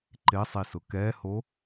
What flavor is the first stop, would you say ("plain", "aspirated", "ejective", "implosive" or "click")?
click